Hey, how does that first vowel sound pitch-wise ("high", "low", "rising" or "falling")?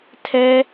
high